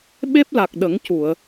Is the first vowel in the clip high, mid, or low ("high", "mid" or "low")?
mid